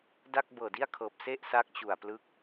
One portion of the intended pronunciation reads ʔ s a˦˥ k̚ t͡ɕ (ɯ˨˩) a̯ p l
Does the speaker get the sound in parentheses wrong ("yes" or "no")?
yes